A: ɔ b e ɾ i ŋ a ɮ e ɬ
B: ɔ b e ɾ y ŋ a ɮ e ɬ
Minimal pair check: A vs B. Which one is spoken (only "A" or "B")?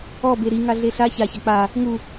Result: A